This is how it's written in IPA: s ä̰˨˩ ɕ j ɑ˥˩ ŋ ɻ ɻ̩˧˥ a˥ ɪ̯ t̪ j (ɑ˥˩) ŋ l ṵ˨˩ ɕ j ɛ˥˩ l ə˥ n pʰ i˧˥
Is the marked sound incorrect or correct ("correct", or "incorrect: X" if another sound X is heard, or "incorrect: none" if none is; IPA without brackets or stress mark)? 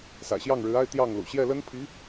correct